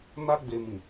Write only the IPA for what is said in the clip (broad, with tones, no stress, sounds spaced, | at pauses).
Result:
n a˧ ɡ͡b e˨ m ĩ˨